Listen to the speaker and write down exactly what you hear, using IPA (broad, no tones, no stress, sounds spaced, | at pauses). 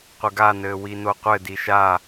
qʷ ɘ ɡ a n ɘː w i n o qʷ ɘ d i ʃ a